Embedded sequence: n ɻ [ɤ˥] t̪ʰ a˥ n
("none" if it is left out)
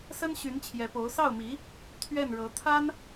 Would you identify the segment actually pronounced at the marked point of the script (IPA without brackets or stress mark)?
ɤ˧˥